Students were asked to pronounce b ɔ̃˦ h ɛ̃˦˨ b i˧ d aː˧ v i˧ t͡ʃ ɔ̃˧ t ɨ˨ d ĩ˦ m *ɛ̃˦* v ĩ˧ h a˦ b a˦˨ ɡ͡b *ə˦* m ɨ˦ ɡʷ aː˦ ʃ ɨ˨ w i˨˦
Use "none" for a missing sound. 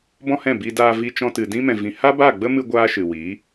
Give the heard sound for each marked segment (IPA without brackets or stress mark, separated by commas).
ɛ̃˨, ə˦